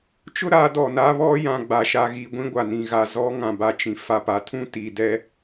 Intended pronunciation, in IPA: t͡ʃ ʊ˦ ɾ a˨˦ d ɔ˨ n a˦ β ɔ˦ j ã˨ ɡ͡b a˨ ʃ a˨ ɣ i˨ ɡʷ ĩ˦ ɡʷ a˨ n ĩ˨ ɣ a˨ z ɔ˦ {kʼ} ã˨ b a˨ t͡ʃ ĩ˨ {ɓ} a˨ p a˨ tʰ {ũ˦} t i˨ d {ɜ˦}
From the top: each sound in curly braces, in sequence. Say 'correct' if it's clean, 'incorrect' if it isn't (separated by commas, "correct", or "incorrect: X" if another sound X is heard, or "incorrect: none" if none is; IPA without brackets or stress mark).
incorrect: ŋ, incorrect: f, correct, incorrect: ɛ˦